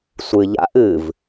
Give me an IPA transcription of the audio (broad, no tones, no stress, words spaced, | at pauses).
sʷɨ ʎa̰ʔ ɨv